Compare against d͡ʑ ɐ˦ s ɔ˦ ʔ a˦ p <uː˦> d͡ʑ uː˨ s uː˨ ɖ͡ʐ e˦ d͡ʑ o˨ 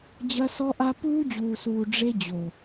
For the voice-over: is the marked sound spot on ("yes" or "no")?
yes